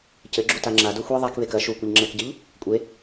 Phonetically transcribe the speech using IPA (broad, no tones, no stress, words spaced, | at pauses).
cɘɡ͡ǁuta ŋ͡ǁado xʷi ðˤakβek ɐ ʃukʷɨʎŋ͡ǁɛkɟɘʎ | kʷʼe